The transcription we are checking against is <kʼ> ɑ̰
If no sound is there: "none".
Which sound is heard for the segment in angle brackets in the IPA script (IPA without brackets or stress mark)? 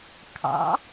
kʰ